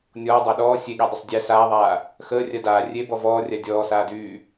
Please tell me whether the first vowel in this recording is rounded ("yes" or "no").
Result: yes